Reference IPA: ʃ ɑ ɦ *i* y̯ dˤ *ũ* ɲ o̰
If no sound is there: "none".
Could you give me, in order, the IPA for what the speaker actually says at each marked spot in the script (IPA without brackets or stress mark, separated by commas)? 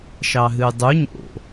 ɨ, u